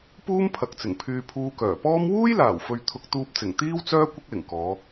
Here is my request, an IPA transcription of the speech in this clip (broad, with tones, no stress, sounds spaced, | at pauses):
p uː˥ m pʰ ɐ˨ k̚ t͡s ɪ˨˩ ŋ pʰ yː˧ pʰ uː˧ k œː˨˩ p ɔː˥ m w uː˥ j l aː˨˩ w f ɵ˨ ɥ t̪ʰ ʊ˧ k̚ t̪ uː˧ p̚ t͡s ɪ˨˩ ŋ t̪ iː˥ w t͡s œː˥ kʷ ɪ˥ k̚ l ɪ˨˩ ŋ k ɔː˨˧